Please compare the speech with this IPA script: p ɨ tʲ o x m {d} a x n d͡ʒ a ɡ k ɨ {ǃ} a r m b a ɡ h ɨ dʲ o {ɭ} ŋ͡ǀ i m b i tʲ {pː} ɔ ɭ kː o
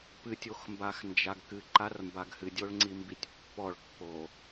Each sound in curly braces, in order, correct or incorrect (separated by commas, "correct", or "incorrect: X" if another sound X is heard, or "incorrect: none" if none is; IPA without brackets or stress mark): incorrect: b, correct, correct, correct